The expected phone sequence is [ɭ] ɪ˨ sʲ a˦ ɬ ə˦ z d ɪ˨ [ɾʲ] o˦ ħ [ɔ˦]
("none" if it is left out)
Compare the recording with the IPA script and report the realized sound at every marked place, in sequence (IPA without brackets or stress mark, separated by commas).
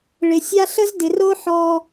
ɭ, r, ɔ˦